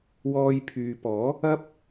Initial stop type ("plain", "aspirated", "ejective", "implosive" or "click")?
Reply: aspirated